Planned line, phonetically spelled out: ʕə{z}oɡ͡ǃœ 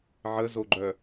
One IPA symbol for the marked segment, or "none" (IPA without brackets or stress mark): z